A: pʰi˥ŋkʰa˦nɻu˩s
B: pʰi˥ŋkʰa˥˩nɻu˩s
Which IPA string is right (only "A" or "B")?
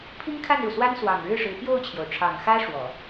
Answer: B